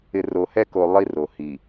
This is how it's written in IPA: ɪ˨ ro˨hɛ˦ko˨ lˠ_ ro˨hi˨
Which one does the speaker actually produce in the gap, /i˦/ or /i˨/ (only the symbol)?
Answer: i˦